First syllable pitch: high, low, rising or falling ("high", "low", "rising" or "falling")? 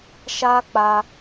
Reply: high